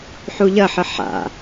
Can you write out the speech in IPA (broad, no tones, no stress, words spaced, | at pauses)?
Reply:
ħuʎɐħə ħa̰